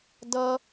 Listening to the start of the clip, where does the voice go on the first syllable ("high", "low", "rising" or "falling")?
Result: high